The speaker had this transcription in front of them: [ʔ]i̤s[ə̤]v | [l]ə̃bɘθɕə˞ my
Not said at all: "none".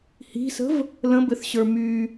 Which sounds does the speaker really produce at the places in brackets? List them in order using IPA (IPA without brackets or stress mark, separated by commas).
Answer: h, ə̤, l